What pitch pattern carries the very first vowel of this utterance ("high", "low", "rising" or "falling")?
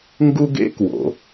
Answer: high